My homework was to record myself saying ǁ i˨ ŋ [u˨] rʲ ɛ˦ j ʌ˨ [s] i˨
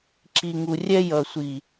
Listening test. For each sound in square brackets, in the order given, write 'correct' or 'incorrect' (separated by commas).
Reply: correct, incorrect